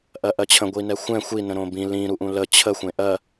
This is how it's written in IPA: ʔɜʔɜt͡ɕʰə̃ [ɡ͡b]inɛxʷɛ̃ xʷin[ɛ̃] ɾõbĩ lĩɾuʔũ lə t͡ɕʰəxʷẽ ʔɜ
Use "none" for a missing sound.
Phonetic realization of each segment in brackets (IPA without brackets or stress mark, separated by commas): ɡʷ, ə̃